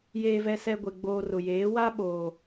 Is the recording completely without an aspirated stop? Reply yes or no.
yes